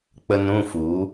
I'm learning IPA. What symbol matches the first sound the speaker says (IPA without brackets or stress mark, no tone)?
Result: k͡p